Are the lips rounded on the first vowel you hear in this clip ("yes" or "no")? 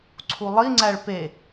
yes